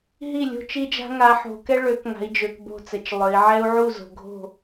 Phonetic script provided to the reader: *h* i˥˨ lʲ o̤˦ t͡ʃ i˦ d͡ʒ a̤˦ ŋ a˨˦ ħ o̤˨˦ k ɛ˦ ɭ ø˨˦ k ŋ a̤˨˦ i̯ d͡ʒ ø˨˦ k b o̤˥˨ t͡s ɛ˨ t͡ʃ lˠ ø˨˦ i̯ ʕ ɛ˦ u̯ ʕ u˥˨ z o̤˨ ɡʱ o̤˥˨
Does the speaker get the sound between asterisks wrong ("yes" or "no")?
yes